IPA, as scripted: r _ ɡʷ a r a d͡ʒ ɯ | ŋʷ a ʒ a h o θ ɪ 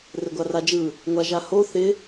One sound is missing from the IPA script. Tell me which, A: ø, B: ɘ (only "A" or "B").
B